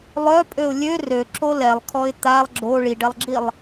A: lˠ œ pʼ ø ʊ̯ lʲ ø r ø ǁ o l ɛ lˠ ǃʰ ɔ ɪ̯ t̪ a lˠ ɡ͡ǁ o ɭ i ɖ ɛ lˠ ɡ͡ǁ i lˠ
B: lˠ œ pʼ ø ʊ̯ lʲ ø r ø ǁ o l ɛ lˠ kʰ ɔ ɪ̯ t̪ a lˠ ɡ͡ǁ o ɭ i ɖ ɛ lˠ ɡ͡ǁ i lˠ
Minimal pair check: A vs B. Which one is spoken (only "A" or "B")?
B